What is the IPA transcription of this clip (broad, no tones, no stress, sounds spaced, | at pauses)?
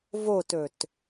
v o t ɵ t